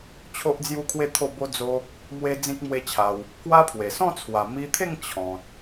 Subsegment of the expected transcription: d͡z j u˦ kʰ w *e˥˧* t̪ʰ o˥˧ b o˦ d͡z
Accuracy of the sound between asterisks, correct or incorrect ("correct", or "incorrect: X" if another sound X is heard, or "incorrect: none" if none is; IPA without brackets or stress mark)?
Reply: correct